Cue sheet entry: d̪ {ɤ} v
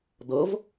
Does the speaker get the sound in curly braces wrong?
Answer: no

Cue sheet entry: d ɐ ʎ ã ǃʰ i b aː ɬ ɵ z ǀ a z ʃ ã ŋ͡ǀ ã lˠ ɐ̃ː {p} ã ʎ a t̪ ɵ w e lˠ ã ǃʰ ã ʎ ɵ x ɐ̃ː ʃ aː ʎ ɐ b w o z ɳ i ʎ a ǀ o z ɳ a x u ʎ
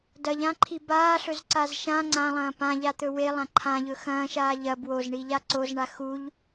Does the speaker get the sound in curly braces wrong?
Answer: no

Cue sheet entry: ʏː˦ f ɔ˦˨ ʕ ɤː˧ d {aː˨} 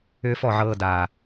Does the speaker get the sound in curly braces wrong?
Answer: no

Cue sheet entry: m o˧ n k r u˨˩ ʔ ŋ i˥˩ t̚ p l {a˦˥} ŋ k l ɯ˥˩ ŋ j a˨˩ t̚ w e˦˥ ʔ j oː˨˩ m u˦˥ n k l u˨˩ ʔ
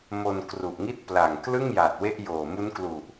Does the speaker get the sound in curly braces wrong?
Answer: yes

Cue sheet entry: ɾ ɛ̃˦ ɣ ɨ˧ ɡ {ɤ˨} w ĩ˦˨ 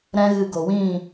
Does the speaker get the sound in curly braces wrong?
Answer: yes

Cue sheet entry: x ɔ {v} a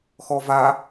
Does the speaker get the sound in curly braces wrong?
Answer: no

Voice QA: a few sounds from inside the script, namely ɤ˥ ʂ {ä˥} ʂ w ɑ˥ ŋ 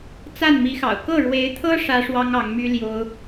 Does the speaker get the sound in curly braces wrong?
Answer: no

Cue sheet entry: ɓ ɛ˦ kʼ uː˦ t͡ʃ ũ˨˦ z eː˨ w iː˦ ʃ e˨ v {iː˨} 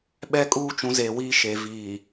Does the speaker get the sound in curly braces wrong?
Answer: no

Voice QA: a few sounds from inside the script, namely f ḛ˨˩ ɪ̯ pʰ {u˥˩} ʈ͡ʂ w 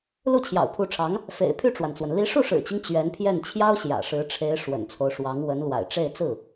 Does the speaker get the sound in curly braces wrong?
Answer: yes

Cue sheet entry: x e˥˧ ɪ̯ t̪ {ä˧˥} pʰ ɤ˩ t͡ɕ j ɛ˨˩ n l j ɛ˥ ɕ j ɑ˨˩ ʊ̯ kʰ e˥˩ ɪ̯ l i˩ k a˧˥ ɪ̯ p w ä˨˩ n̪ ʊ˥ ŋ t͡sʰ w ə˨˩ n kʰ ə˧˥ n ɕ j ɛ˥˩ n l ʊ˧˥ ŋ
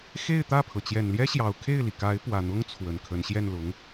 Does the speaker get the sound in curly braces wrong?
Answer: yes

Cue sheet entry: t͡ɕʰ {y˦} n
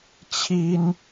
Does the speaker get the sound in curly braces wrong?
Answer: yes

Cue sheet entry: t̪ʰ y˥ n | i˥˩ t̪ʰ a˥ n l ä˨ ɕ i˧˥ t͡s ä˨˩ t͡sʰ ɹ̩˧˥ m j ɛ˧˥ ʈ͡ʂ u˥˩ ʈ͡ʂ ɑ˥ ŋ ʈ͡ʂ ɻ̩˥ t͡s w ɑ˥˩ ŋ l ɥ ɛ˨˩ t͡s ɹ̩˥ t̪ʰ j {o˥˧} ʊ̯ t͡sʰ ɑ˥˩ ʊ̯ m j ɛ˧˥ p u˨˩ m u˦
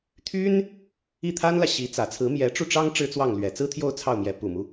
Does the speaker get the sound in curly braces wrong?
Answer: no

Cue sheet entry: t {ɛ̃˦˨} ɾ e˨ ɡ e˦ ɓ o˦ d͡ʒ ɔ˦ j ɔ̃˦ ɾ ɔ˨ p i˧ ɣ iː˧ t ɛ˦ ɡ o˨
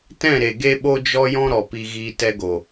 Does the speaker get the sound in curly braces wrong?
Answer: no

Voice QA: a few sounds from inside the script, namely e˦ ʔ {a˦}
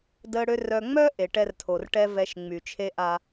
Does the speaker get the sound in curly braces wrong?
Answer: no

